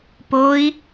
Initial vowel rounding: rounded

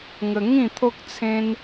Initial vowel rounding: unrounded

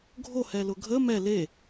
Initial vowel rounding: rounded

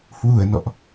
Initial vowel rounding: rounded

